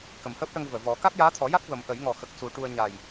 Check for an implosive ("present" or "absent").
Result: absent